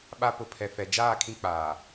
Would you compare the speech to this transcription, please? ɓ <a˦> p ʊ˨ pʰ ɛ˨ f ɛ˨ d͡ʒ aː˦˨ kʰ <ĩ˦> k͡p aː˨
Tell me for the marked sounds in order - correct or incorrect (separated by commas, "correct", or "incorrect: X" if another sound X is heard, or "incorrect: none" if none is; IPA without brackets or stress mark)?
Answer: correct, correct